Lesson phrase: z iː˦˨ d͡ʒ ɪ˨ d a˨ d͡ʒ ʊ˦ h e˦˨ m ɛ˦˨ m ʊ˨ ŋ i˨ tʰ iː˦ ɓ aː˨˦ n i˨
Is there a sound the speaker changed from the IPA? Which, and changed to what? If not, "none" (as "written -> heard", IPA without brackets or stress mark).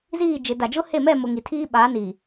none